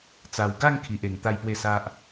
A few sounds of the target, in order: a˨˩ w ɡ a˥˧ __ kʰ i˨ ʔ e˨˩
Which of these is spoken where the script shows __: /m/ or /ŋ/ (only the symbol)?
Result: ŋ